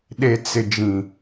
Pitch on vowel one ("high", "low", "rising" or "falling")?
low